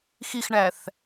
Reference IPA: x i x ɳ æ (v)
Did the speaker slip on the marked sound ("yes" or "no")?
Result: yes